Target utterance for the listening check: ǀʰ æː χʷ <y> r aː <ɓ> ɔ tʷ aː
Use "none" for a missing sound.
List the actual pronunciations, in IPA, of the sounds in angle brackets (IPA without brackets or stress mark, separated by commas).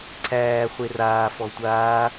e, f